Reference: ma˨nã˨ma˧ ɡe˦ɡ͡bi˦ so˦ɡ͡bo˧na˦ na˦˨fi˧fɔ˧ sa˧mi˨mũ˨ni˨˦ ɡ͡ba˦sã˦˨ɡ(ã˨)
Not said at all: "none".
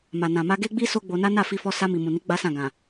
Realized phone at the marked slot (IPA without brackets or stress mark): ã˨